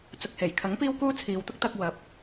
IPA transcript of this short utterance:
t͡s ʊ˨ k̚ h e˨˩ j kʰ ɐ˨˥ ŋ p iː˥ w k uː˥ t͡sʰ iː˨˧ w t̪ ʊ˥ k̚ t̪ ɐ˧ k̚ w ɐ˨˥ p̚

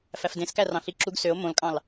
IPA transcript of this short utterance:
f æ f d ẽ s k æ r ɑ̃ ɬ i ǁ u ɡ s ø o̯ m õ l kʼ ɑ̃ l

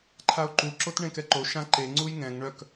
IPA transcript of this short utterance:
ǃʰ a o̯ ǃ u ǁ o t ɳ ẽ k ɛ ǃ o ʃ ã ǃ e ŋ͡ǀ u j ŋ ɛ̃ ŋ ɳ œ k

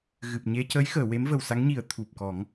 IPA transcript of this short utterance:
ɣ ɨ˨˩ p̚ ɲ e˧ c ə˧˥ j x əː˨˩˨ w e˧˥ m v ə˨˩ w s a˧˥ ŋ ɲ i˨˩˦ ə̯ t̪ʰ u˨˩ p̚ k ɔ˨˩˦ ŋ

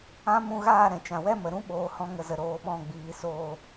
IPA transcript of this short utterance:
ã˦ m ũ˧ ɣ aː˦˨ ɾ ɛ̃˨ t͡ʃ ã˨ w ɛ˦ m ə˨ ɾ ũ˦ ɓ oː˨ h ɔ̃˧ ŋ ə˨ z ə˨ ɾ oː˧ ɓ ɔ̃˦˨ ɡ͡b iː˨ s oː˨

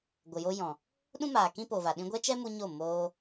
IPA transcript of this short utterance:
ɡʷ ə˨ j o˧ j ɔ̃˨ | ɗ ũ˦ m aː˨ k ĩ˦ p o˨ v a˨ ɗ ĩ˧ ɡʷ ɛ˦ t͡ʃ ɛ˦ m u˧ ɲ o˦˨ m oː˧

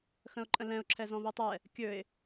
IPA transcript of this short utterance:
x ə̃ ʊ̯ ǃʼ ə̃ l ɛ̃ ʊ̯ ǁʰ ɛ z ɔ̃ v i tˤ ɛ | kʲ ɵ ɪ̯

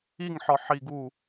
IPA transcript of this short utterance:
i ŋ ħ ɒ ħ i ɡ u

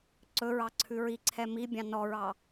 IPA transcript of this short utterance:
ǀ ɵ ɹ ɑ ǀʰ ʉ ɹ i ǀʰ ɛ m i bʲ ɑ̃ n ɔ ɹ ɑ

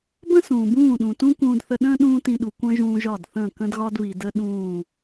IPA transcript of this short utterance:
b ə̃˦ s ũː˨ b ũː˦˨ ɗ ũ˨ t ũ˦ k ũː˧ d θ ə˧ ɗ ə̃ː˦ ɗ ũː˦ t ĩ˧ ɗ u˨ kʷ ə̃ː˦ ʒ ũː˧ ʒ ɒ˦˨ d θ ə̃ː˦˨ k ə̃˦ d ɣ ɒ˦ d β i˨ d ə˦ ɗ ũː˦˨

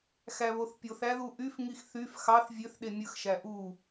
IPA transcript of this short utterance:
x æ β o θ pʲ o θ æ ð u ʔ y f ŋ i x θ y f x ɑ θ vʲ ø θ ɗ e mʲ ɯ x ʃ æ ʔ u

